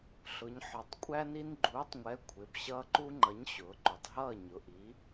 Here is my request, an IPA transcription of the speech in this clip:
ɬ ʊ˩˧ ɲ ħ ɒ˩˧ tˤ kʷʼ æ˦ n i˦ n ɡ͡ǃ uː˨˥ tˤ ŋʷ ɛ˨˥ kʷʰ ɪ˩˧˩ b ɕ ʌː˦ ǃ u˦ ŋ͡ǃ ʌ˨˥ ɲ ɕ ʊː˩˧ ǃ u˩˧ tˤ ɦ ʌː˥˨ ɲ ʊ˩˧˩ ʔ i˨˥

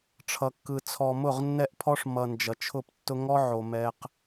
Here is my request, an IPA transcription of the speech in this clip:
ʈ͡ʂʰ ʌ˨ kː ɯ˨ t͡sʰ ɔ˨ m ʊ˦˨ ʁ nː ɛ˦ ʔ pʰ ɔ˦ ʂ m ʌ˨ n d͡ʒ ʌ˨ t͡ʃʰ ʊ˦˨ p tː ʊ˦ ŋ ɔ˦ ʕ o˨ m ɛ˦ q

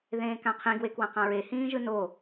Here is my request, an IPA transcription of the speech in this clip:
ð ẽː k ã qʰ ĩ ɡ w e k w ã q ã ɹ e h ĩː ʒ ɯ n o

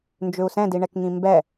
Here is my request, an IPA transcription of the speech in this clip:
n d͡ʒ ʏ u̯ s ɛ̃ d i ɳ ɛ k ŋ ĩ m b ɛ

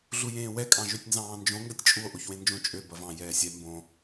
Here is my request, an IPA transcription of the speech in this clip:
ɮ u j ẽː w ɛ kʼ ɑ̃ ʒ ø tʲ n z ɑ̃ː n d͡ʒ õ ŋ ɡ ɐ tʲ t͡ʃʼ u o̯ ʔ o ç w ẽ n d͡ʒ õ t͡ʃʼ ø b ɐ v ɑ̃ j ɛː sʲ ɛ m b õ

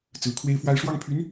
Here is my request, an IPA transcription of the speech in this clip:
t͡s ɹ̩˧˥ kʰ w e˥ ɪ̯ f w a˥ ɪ̯ ʂ w ɑ˥˩ ŋ pʰ y˧˥ n

